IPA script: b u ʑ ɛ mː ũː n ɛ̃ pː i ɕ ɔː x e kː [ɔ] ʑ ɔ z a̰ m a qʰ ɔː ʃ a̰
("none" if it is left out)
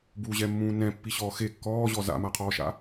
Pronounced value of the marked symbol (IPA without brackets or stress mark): ɔː